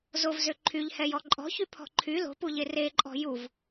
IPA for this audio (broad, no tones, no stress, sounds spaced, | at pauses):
z o v z ø ǃʰ y ʎ h ɛ j ɔ ǃʼ ɔ̤ ç y pʰ ɔ̤ ǃʰ y l o̤ p u ʎ e r e ǃʼ ɔ̤ j u v